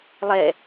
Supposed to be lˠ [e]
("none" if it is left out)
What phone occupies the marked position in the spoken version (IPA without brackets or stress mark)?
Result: ɛ